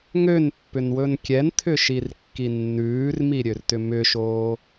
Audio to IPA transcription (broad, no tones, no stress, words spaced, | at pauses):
ŋønpːʏnwɵn kʲɛnt̪ʰʏʃirkːi nːʉːrmiɾʲørtʏ mʏʃoː